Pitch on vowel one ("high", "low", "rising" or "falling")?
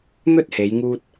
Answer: high